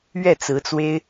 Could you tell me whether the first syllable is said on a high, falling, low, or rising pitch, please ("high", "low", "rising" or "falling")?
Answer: falling